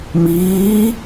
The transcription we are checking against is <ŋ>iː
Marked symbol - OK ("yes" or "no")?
no